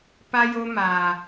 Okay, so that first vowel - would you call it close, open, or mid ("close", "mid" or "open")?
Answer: open